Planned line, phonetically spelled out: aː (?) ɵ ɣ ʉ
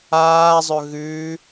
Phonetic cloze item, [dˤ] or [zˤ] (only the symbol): zˤ